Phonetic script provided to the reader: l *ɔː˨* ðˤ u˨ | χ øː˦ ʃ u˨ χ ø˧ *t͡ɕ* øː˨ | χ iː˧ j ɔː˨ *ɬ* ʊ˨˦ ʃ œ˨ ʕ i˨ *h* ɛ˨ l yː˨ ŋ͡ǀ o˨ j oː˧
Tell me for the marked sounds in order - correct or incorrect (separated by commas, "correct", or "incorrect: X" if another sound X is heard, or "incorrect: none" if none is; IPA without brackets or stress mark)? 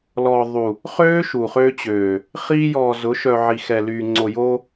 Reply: correct, correct, incorrect: z, incorrect: x